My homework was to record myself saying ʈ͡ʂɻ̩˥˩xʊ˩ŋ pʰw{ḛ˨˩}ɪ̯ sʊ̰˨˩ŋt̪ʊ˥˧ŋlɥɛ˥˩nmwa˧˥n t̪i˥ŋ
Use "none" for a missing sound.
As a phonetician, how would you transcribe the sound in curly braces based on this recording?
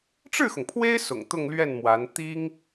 e˥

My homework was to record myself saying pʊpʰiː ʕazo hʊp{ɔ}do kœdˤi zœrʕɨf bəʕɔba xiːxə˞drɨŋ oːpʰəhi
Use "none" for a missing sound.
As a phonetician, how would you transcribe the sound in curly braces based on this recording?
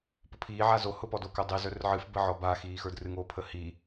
ɔ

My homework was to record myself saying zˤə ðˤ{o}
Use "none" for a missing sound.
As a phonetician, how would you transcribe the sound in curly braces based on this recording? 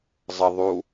u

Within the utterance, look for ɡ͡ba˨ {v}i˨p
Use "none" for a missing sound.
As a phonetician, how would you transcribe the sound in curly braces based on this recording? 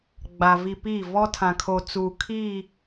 v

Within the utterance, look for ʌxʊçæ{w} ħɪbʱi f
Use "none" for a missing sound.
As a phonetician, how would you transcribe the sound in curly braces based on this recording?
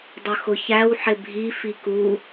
w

